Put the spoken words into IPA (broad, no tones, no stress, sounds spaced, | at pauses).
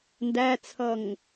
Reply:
n d æ t͡sʰ ʌ ŋ